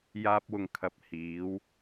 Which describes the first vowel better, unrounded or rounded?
unrounded